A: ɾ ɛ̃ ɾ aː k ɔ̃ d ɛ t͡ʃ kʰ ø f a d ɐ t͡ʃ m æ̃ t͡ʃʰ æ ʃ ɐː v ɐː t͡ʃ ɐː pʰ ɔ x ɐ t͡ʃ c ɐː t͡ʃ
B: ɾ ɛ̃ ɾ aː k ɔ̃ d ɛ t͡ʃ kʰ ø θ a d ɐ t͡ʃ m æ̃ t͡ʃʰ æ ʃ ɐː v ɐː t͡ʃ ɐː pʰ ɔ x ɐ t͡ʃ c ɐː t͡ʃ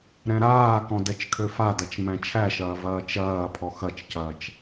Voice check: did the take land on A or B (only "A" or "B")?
A